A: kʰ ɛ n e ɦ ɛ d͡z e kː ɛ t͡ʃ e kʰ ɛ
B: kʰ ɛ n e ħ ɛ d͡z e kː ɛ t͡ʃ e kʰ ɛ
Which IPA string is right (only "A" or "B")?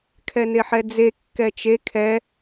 B